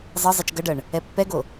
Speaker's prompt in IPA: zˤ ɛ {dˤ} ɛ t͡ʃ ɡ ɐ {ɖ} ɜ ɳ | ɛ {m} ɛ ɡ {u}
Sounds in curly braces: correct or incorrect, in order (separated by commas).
incorrect, correct, incorrect, incorrect